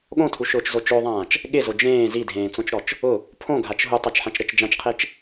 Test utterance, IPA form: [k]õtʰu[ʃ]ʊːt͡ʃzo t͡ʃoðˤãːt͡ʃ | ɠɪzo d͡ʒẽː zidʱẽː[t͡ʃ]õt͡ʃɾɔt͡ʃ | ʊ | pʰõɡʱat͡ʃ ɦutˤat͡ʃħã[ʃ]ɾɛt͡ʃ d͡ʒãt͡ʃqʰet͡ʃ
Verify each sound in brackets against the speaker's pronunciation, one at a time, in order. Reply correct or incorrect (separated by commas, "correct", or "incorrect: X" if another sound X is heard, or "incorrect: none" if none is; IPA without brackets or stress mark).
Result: incorrect: ɠ, correct, incorrect: t͡s, incorrect: t͡ʃ